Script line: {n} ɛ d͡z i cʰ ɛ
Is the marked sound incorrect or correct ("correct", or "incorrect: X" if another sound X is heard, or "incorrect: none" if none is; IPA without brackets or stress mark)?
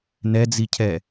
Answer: correct